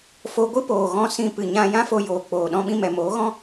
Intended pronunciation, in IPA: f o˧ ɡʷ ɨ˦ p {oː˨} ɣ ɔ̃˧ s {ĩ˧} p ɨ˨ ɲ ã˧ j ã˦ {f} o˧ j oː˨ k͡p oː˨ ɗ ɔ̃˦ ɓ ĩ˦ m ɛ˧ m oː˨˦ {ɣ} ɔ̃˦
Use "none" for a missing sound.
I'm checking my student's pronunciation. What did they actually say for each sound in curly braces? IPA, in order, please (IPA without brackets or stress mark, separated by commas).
oː˨, ĩ˧, f, ɣ